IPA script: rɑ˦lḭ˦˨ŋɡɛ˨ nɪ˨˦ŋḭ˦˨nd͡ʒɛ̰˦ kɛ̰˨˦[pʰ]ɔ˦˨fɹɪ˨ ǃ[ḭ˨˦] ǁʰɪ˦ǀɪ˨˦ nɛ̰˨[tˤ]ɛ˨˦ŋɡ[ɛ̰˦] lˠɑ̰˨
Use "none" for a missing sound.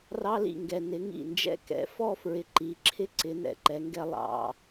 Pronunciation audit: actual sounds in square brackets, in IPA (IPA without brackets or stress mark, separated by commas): f, i˨˦, ǃ, ɛ˦